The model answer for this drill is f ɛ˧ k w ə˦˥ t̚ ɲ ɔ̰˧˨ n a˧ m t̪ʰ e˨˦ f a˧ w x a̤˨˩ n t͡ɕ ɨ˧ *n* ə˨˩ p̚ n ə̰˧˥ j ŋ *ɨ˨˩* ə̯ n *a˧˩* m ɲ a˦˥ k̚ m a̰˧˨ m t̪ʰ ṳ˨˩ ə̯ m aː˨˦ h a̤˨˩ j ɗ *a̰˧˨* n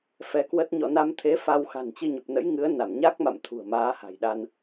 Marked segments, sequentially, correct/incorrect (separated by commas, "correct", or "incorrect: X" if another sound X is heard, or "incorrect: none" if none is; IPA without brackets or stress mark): incorrect: ɲ, incorrect: ɨ˨˦, correct, incorrect: a˧